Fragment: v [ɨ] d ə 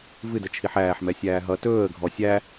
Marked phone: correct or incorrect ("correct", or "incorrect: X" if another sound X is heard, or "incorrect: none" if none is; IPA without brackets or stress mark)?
correct